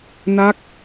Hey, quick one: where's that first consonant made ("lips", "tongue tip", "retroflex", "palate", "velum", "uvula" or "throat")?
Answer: tongue tip